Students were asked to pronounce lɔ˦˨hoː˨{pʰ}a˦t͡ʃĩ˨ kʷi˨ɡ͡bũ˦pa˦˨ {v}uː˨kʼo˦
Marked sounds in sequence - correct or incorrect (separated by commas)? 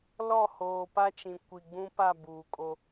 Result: incorrect, incorrect